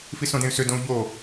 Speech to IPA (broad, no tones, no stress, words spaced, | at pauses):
fisõdẽy̯sʏ dõu̯ʎo